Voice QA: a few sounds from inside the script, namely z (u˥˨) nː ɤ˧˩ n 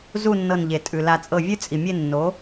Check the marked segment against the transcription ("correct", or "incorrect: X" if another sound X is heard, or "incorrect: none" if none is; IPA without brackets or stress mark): correct